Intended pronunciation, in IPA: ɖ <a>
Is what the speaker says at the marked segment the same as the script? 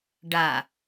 yes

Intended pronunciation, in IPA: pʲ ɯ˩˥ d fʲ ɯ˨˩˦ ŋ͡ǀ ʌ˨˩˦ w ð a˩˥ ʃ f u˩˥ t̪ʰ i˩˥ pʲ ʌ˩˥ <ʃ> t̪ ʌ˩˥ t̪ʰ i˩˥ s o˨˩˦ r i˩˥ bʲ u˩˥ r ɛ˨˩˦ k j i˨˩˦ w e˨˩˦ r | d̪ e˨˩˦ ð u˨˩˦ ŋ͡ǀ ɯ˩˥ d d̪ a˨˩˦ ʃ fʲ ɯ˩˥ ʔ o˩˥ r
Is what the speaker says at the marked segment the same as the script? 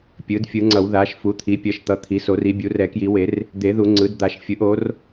yes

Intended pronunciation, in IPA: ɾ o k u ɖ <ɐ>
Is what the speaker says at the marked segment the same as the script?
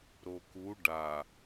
no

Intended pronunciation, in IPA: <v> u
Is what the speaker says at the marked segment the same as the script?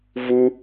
yes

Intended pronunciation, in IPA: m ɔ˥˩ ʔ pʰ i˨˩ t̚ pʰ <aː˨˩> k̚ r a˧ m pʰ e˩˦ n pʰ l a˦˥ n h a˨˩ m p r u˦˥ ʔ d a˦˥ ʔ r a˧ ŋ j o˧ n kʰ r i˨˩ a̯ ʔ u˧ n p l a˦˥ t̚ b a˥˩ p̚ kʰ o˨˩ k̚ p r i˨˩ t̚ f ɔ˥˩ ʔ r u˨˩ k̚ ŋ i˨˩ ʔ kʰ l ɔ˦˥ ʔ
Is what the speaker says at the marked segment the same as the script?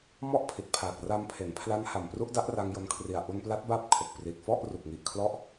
yes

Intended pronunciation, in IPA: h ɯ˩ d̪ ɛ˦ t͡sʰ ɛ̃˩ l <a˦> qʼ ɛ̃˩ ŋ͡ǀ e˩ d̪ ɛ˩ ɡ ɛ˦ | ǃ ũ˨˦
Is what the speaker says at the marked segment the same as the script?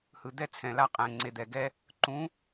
yes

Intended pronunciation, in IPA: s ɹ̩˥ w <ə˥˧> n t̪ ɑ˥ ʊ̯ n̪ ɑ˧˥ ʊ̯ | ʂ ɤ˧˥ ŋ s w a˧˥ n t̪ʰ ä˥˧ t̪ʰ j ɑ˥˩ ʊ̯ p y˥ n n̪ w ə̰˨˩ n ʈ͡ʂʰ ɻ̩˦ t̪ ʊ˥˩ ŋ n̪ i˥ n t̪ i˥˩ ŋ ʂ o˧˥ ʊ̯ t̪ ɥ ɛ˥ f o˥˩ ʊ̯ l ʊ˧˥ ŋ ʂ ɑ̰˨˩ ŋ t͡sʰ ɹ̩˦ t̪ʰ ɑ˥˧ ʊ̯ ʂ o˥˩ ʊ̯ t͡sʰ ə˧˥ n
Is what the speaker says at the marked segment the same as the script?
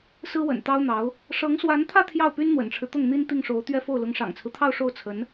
no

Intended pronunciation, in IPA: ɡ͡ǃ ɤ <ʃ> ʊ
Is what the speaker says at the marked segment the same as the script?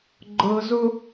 no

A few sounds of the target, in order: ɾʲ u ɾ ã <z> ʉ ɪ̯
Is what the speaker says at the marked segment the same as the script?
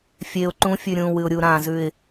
yes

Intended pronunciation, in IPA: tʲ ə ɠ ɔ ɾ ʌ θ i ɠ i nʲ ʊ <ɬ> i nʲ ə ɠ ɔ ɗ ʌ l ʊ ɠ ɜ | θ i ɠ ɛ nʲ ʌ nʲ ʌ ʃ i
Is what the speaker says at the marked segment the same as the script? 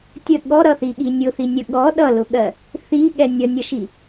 no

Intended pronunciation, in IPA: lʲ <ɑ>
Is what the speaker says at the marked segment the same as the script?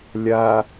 no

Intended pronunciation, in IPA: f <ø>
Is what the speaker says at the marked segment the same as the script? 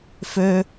yes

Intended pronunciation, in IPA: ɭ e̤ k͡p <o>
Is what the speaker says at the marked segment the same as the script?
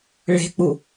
no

